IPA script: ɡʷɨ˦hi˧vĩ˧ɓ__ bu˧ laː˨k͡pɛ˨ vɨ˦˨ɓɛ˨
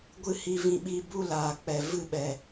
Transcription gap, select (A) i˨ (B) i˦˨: B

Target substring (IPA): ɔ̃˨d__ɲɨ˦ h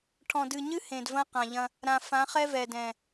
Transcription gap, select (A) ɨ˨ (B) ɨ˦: A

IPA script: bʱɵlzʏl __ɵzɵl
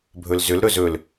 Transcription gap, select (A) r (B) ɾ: B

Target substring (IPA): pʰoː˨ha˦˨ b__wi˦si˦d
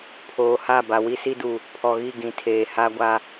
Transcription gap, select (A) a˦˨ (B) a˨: B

